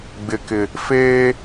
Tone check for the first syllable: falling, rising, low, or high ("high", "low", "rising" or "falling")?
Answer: low